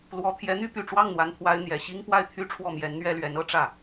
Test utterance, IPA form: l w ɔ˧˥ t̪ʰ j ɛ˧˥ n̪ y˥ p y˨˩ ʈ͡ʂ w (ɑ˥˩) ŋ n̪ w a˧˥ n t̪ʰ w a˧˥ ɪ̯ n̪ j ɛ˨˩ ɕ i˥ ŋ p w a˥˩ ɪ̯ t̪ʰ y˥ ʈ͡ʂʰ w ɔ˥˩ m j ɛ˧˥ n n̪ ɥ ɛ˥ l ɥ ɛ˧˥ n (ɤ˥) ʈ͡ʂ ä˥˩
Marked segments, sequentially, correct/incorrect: correct, correct

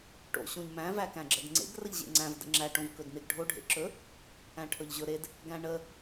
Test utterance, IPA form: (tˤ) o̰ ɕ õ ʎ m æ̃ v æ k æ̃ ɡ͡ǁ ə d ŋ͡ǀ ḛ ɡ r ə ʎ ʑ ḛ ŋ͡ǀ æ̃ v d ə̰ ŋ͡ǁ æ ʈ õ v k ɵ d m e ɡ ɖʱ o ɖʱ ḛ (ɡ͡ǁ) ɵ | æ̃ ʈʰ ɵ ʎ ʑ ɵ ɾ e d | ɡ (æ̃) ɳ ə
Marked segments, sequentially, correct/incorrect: incorrect: ʈ, incorrect: ǁ, correct

